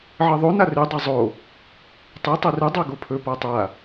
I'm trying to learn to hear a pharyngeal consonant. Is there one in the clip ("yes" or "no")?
yes